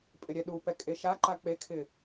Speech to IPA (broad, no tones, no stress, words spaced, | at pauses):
pʼɪɾʲɛɗupɛ kʼeʃaǃa k͡pekʰɪ